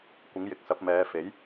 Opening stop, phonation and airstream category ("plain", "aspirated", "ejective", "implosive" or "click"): plain